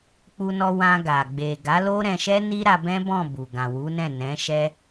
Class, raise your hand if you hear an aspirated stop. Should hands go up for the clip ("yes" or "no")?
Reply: no